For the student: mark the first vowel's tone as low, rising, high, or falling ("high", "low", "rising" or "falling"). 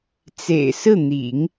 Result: low